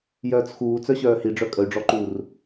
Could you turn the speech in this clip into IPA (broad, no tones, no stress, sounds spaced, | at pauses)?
j œː t͡s x uː t͡s œ ɕ œː h i ɖ͡ʐ œ kʼ ə y̯ ɖ͡ʐ ɔ ǃ uː r